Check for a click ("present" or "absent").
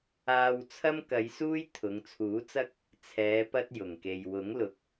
absent